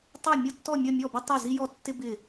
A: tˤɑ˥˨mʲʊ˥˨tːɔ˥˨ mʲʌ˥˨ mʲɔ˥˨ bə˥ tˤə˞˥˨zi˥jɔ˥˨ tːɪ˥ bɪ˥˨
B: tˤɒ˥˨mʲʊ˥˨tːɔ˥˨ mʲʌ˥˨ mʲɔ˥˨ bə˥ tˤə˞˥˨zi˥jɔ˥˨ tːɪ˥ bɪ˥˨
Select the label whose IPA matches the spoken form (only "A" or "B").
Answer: A